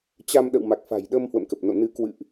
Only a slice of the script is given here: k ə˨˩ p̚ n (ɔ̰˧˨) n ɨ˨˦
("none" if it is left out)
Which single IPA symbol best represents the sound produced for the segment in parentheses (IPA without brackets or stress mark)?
o̰˧˨